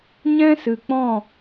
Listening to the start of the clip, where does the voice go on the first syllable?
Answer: high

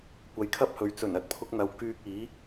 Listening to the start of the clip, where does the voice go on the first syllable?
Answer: rising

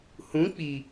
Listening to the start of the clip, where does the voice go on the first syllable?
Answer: rising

